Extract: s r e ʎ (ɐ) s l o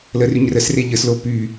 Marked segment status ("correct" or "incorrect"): incorrect